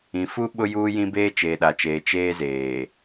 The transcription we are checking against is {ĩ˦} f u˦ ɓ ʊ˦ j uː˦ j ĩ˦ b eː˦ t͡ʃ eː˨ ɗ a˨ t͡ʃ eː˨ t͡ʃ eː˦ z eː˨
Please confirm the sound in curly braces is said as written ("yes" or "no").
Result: no